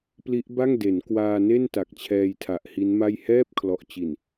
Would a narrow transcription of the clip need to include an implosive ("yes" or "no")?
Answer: no